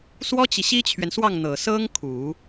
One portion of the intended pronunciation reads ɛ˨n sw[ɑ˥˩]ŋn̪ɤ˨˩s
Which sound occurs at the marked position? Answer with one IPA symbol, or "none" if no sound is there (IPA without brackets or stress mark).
ɑ˥˩